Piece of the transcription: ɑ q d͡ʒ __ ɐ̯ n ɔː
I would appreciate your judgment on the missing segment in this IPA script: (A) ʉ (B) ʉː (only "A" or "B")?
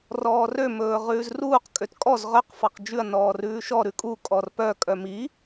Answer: A